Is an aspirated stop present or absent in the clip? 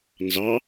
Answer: absent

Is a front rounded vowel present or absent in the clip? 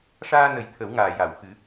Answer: absent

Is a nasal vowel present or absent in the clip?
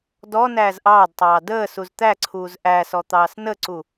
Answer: absent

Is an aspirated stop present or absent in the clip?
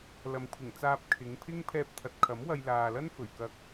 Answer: present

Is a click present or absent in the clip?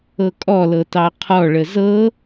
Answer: absent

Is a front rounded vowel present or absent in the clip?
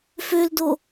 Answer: present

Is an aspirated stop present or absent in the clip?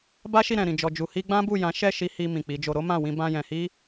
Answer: absent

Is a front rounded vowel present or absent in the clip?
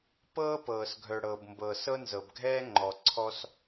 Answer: present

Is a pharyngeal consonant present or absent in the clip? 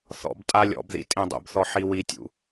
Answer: present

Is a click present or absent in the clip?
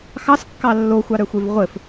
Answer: absent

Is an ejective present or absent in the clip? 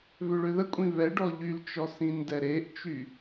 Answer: present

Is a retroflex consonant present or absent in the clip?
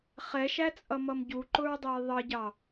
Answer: absent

